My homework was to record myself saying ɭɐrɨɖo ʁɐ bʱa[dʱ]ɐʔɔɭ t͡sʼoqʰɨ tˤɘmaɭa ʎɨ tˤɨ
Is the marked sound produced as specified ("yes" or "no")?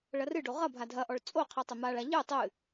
yes